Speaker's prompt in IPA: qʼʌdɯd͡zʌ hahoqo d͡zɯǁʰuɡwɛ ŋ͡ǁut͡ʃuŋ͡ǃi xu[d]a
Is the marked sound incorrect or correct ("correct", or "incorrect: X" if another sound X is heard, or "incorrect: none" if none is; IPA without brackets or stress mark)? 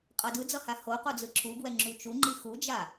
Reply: incorrect: d͡ʒ